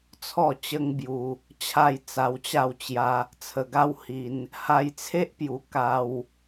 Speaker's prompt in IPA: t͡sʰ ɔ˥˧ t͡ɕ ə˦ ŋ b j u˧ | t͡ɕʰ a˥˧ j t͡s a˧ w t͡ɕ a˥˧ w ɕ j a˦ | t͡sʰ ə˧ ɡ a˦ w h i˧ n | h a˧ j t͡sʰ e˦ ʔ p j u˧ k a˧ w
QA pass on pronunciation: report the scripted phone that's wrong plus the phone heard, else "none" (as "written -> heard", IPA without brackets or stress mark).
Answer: ɕ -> t͡ɕ